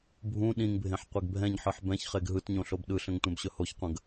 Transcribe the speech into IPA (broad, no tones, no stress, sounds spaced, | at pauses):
bʱ ũ ɗ ĩ ŋ bʱ ẽ ħ qʷ e ɡ bʱ ɛ̃ ɲ ħ ɯ ħ b ɛ̃ ç χ e ɡ ɦ ɯ t ɲ õ ɬ o b ɗ ɯ ɬ ə̃ ŋ tʷ ɛ̃ b ɕ ɵ h o ç qʷ ə̃ ɡ